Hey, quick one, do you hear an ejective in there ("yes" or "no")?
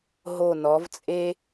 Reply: yes